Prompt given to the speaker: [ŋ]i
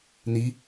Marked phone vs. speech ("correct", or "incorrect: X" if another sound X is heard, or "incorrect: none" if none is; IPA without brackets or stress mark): incorrect: n